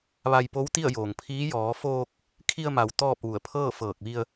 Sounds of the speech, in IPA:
ʋ a˧ j p o˧˥ w t̪ i˥˨ ə̯ j oː˩ ŋ pʰ iː˧˥ j ɔː˩˧ f oː˧ k̚ | kʰ i˧ ə̯ m a˩˧ w t̪ ɔː˥˨ p̚ ʋ u˧˩ ə̯ pʰ ɤː˥˨ f ɤː˧˩ k̚ ʋ i˧ ə̯

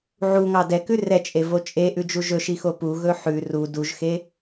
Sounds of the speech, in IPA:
ʕ u ŋ ɑ d ɛ k ʉ r ɛ t͡ʃʼ e v o t͡ʃʼ e ʔ ʉ d͡ʒ u ʒ ɵ ʃ i x o p u ɣ ɵ ħ ʉ r u d u ʒ x e

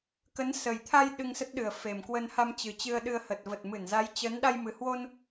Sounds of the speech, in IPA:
k ə˨˦ n s ə˨˩ j t̪ʰ a˧ j ɗ ɨ˧ ŋ s ə˦˥ t̚ ɗ ɨ˨˩ ə̯ f e˨˩ m k w ə˧ n h a˧ m t͡ɕ ɨ˨˩ t͡ɕ ɨ˧ ə̯ ɗ ɨ˧ ə̯ h ə˨˩ t̚ v ə˨˩ t̚ m ɨ˧˩ n z a˨˦ j t͡ɕ ə˨˦ n ɗ a˧ j m ɨ˨˩ h w o˧ n

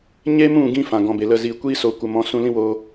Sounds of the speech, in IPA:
ɲ e˦ m ũ˦˨ ɡ ĩ˧ f ã˨ ɡ ɔ̃˨ b e˨ l ə˧ z iː˨ kʷ iː˦ s o˨ kʷ ə˨ m ɔ̃˨˦ s ũ˧ l ĩ˦ w oː˧

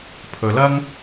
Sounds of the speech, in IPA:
pʰ ɵ˩ l ɐ˥ ŋ

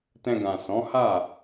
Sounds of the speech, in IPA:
t ɛ̃˧ ɡ ã˨ s ɔ̃˨˦ h a˦˨

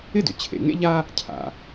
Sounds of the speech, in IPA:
ɪ˥ d ʏ˩ t͡ɕʰ ḛ˩ ŋ ḛ˥ ʎ a˥ | cʰ a̰˩

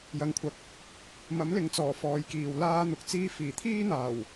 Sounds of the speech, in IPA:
j ɐ˨˧ ŋ kʷʰ ɐ˨˥ k̚ | m ɐ˨˥ m l ɪ˨ ŋ t͡s ɔː˨˩ f ɔː˨˧ j k iː˨ w l aː˥ n̪ ʊ˧ k̚ t͡s iː˥ f iː˨˩ t̪ʰ iː˥ n̪ aː˨˩ w

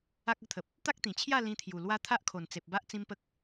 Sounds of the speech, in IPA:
a˦ k̚ ə˦ t̪ʰ ə˨ p̚ | t̪ a˦ k̚ t̪ ĩ˨˩ t͡ɕʰ j a˥˧ l ĩ˧ t̪ʰ j u˨˩ l w a˦ t̪ʰ a˦ ʔ kʰ o˨˩ n t͡s e˨ p̚ b a˦ ʔ t͡s ĩ˦ m p ə˦ k̚

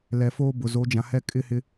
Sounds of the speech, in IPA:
l ɛ˨ f oː˦ b ʊ˨ z o˨˦ d͡ʒ ã˨ h ɛ˦ kʼ ɪ˦ h ɪ˦

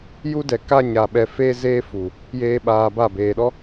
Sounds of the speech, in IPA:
j u˦ d ɛ˨ k a˦ ɲ aː˨ ɓ ɛ˨ f eː˧ z eː˦ f u˨ | j eː˦ ɓ aː˧ b a˦˨ b eː˨ ɗ ɔ˦

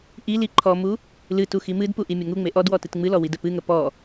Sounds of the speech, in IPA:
ʔ i l i ǃʰ ɔ m u | l ɨ t u x i m ɨ d p u ʔ i mʲ ə ŋ u ŋ͡m e ʔ ɔ d w ɔ t ɨ t ŋ͡m ɨ l ɔ w i d ə p ɨ ŋ ə p ɔ

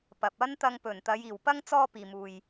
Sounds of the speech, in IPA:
p ɐ˨ p̚ ɐ˥ n t̪ ɐ˧ ŋ p ɵ˨˩ n t̪ ɐ˨˧ j iː˨˩ w p ɐ˥ ŋ t͡s ɔː˥ p iː˨ m uː˨ j

